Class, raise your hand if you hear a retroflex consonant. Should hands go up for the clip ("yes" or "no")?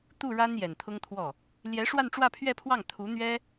yes